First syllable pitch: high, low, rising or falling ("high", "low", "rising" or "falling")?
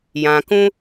low